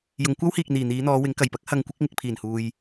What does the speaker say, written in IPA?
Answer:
jʊ˨˧ŋ kʷɐ˥whiː˨k̚ n̪iː˨˩n̪iː˨˧n̪ɔː˨˧ wɪ˨˥ŋkɐ˨˩j pɐ˥k̚ hɐ˧ŋkʷɪ˥k̚ŋɪ˧k̚ pʰiː˨˩nhuː˨j

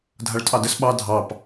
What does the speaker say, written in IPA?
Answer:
dʱaɭtʼɑdəs ɓɑ dʱɑp

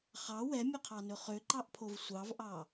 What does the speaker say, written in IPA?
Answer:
χɑ wɛmʲɵqʰɑnɵ χøǃɑʔpʰov sʷɑvʔɑ

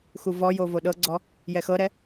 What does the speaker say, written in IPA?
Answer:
xuvɔjo voɗɤɡ͡ǀɔ | jɛxɤɾɛ

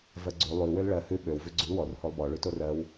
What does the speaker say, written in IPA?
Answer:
vɜɡ͡ǀʉ lˠʉ wølɭɜ hʉ ɓøw vʉɡ͡ǀʉl wɔr holˠbɔ ɭʉtorɜw

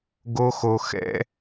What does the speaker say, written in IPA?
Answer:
ɡo˦xo˧ xɛ̰˦

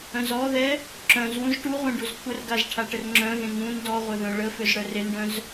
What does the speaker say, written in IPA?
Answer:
œ̃zɔðɛ | ǁœ̃zwũz ʈuʁʷẽ ɖuzkʷʰərɡaz ʈʰaʈərŋ͡ǁœ̃ɣẽ ŋũn dɔ ʁʷœðœ̃ɭəføz ɽœrenɖœ̃z

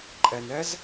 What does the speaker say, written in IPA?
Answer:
ǃʼɛnɛz

